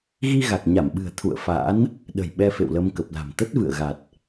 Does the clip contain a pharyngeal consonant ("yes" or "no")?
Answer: no